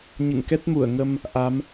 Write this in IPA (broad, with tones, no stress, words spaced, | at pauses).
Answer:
ɲɨ̰˧˨ŋkɛ˦˥t̚mu˧˩ə̯ ŋə˧m | ʔa˨˦m